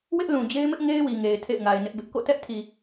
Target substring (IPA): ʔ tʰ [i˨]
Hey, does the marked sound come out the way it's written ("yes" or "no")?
yes